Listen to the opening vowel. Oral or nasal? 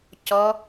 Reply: oral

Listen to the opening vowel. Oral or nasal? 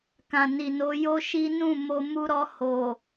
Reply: nasal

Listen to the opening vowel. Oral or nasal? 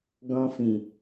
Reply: nasal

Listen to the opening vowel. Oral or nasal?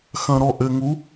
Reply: nasal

